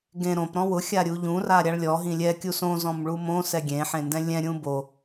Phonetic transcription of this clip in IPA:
ɡẽ ɾõp ɾɔ̃wʊ xʲaɾʲuʎũ raɾʲaɭlʲɔ ɦĩlʲɛ kʲusõ zɔ̃mɭumõ sɛɡʲẽ ħẽndɛ̃lʲɛ̃ ɾʲũbo

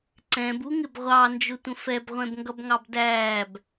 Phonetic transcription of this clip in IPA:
ǀɛ̃b uŋɪbʁʷɑ nd͡ʒʊtʷə̃fɛb ʁʷɛ̃bŋɡʌbŋɑbdæːb

